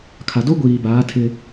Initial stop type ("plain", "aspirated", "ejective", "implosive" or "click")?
aspirated